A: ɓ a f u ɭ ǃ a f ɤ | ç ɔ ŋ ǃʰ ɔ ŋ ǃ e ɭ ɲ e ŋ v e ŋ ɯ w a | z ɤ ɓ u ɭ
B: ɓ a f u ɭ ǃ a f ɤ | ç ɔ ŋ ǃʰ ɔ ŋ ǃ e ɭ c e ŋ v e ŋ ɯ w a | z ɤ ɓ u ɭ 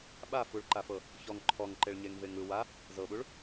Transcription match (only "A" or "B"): A